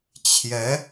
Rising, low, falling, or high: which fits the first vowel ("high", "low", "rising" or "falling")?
rising